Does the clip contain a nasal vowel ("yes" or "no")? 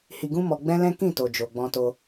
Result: yes